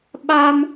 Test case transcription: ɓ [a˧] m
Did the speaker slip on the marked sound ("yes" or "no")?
no